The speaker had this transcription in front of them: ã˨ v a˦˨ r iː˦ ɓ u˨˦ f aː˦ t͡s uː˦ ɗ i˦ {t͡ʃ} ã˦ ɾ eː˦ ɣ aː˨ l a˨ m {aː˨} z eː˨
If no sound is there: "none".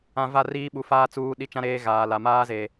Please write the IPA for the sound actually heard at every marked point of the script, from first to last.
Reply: t͡ʃ, aː˦

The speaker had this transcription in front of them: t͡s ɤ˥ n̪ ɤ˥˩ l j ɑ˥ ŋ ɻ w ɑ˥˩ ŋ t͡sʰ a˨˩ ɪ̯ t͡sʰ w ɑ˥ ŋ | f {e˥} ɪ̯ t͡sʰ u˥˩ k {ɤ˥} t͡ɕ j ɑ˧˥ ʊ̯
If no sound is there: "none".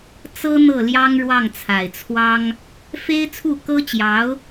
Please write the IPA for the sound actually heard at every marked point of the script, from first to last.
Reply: e˥, ɤ˥

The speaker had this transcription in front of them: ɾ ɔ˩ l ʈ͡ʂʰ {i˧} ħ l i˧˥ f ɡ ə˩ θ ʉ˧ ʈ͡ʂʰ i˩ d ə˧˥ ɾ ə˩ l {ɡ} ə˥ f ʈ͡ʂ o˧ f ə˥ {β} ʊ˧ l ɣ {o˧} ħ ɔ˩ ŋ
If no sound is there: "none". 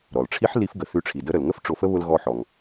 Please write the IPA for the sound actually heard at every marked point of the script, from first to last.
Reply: i˧˥, ŋ, β, ɔ˧

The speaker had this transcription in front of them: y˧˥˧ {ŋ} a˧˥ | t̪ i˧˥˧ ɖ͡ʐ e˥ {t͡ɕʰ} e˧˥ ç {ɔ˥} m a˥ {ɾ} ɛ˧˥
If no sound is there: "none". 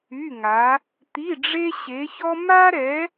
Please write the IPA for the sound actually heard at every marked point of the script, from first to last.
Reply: ŋ, ɕ, ɔ˥, ɾ

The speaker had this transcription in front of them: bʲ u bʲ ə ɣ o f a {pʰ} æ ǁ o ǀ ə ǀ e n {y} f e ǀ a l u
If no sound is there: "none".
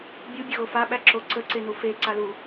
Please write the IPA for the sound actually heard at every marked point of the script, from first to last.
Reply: ɓ, u

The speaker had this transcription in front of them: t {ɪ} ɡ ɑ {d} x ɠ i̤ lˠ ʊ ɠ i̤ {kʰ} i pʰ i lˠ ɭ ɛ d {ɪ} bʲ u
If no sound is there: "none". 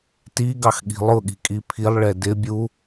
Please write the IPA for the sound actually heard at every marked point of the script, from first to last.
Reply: i, none, kʼ, ɪ

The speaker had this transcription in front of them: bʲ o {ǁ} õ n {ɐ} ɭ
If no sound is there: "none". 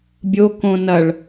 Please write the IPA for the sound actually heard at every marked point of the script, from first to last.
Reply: k, ɐ

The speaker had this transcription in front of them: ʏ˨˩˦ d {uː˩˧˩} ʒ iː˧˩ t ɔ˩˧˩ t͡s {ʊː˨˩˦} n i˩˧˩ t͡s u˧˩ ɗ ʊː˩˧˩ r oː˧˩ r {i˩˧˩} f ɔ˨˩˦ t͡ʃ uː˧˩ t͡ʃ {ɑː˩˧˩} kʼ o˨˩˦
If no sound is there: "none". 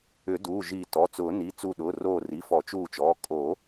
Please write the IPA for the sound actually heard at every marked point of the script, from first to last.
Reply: uː˩˧˩, ʊː˨˩˦, i˩˧˩, ɔː˩˧˩

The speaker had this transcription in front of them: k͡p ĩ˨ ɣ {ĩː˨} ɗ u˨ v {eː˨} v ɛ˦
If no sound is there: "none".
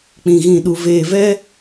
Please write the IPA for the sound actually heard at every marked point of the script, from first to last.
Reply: ĩ˨, eː˨

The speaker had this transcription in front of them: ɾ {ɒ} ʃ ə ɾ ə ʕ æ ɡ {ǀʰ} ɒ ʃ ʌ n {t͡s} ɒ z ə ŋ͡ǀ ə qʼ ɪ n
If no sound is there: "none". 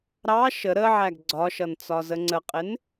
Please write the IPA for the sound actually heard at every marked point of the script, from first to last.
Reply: ɑ, ɡ͡ǀ, t͡s

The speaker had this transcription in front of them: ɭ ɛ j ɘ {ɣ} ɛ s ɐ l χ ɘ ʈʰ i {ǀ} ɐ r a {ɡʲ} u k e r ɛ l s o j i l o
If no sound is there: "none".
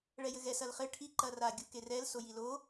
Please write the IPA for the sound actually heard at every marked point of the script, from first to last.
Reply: ɣ, ǃ, ɡʲ

